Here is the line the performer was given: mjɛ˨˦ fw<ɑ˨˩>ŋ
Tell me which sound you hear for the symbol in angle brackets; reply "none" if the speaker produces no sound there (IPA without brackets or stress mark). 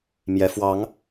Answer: ɑ˨˦